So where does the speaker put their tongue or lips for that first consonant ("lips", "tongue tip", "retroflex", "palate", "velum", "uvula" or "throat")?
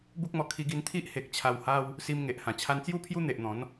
lips